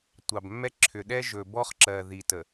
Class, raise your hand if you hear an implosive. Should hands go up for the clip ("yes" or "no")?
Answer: yes